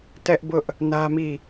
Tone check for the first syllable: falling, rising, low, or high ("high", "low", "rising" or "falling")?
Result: high